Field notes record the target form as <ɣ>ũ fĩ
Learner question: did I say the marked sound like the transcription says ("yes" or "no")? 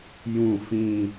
no